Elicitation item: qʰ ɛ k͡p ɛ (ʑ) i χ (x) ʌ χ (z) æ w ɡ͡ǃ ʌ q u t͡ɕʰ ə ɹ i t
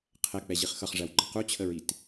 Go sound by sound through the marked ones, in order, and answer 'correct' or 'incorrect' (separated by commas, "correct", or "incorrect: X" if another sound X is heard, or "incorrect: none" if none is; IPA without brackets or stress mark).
correct, correct, incorrect: ʐ